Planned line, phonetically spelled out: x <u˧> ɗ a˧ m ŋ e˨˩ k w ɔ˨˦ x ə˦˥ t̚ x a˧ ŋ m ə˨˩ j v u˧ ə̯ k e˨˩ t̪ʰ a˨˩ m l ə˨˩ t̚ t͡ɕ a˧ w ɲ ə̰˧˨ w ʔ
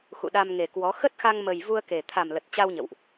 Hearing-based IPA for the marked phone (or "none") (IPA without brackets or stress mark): ṵ˧˨